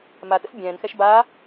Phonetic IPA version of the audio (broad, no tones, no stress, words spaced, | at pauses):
matə̰s bʲɛ̃ːnxɛʃ baː